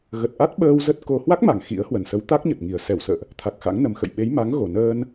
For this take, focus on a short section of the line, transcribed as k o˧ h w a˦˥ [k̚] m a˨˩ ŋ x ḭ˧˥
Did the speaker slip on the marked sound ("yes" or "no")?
no